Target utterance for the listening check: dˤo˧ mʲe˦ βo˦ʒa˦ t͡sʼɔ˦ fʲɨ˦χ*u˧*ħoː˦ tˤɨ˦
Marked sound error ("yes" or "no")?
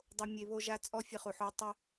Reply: no